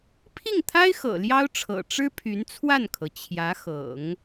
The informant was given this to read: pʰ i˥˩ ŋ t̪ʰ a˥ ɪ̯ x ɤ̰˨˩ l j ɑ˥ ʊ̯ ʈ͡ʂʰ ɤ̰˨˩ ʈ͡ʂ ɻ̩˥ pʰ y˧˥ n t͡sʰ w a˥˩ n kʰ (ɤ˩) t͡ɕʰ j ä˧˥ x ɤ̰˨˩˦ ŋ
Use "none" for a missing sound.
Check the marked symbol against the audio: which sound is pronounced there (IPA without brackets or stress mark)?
ɤ˩